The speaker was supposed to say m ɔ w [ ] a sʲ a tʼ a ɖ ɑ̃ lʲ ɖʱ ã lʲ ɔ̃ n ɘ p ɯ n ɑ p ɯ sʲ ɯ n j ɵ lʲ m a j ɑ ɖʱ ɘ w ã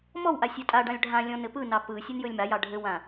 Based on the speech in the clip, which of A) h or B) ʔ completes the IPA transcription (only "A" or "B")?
B